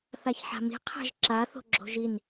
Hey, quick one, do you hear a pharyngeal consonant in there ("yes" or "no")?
yes